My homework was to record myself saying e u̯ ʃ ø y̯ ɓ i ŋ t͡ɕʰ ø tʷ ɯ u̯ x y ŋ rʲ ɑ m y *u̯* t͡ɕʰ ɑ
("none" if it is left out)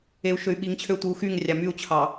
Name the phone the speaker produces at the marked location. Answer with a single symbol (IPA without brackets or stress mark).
u̯